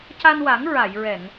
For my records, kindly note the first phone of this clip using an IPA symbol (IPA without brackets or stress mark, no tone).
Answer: c